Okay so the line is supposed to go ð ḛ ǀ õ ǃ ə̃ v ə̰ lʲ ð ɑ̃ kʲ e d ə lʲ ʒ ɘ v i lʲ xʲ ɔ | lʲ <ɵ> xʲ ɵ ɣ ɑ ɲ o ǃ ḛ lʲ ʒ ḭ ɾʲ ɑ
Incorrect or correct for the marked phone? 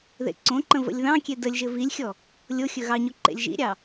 incorrect: o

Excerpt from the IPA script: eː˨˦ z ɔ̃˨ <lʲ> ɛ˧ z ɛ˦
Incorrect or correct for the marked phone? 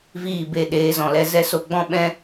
incorrect: l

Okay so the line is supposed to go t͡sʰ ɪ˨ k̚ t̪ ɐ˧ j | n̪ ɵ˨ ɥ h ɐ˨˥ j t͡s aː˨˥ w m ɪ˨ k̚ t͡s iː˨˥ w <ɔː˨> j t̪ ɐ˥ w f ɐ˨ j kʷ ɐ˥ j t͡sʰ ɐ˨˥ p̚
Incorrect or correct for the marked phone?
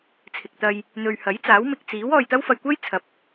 correct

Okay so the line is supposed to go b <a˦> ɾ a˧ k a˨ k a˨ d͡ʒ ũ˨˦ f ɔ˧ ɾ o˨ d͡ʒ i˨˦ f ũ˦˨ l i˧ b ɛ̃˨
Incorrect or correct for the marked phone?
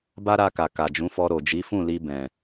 correct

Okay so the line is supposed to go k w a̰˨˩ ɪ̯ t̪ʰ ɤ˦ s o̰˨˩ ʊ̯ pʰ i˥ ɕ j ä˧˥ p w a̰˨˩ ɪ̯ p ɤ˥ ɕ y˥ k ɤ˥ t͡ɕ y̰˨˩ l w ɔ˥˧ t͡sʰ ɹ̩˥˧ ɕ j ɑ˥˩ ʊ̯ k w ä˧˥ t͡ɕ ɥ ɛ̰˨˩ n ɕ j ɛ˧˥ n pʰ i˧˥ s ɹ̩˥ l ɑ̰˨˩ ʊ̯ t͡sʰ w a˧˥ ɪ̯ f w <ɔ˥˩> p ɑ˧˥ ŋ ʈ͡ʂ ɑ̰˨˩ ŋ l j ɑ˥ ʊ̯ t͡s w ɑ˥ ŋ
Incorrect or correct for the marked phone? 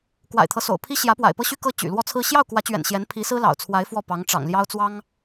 correct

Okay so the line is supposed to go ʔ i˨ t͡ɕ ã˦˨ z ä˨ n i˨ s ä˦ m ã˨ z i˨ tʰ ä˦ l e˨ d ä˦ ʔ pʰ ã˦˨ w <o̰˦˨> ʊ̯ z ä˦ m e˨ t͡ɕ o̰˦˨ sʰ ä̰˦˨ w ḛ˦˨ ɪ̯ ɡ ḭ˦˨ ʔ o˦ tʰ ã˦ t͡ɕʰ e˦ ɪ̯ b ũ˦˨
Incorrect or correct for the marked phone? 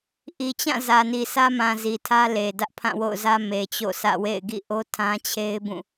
correct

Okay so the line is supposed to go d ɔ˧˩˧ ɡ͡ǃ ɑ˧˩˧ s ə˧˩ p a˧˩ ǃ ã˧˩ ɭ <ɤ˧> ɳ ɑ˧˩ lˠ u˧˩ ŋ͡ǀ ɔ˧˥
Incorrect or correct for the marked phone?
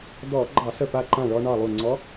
incorrect: ɔ˧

